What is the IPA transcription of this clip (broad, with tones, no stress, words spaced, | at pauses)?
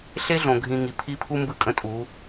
ɬe˦ɮõ˨ɡʱĩ˨ ŋi˨pʰi˦pʰu˦ mbɯ˦kʼə̃˦tʼu˨˦